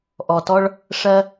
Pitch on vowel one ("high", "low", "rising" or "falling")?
low